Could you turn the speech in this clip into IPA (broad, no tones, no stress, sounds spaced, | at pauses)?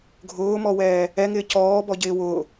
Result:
ɡʱ ʊː m ɔ w ɛː | ɛ ŋ ɪː c ɔː b ɔ ɟ ɪː w ʊː